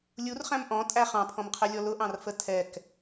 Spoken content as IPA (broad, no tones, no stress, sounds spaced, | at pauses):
lʲ u r χ æ̃ m ʔ ɔ̃ tʼ æ χ ɑ̃ pʰ ɔ̃ m qʰ ɛ lʲ ɔ l ʊ ʔ ɑ̃ r f ə tʰ ɛ k